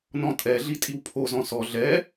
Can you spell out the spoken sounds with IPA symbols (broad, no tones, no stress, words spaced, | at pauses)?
nɔ̃tʼɛɮi tʼiwpʰozɔ̃ sɔ ɮɛ